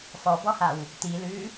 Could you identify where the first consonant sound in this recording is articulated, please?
labial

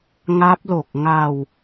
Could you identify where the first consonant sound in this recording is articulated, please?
velar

